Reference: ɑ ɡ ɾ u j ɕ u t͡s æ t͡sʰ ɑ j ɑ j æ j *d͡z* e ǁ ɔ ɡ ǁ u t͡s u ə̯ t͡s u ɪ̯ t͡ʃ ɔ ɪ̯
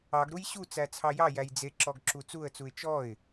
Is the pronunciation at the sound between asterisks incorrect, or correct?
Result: correct